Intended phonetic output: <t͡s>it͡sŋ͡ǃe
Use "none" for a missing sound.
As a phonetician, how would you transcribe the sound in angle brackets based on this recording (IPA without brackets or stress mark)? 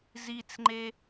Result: z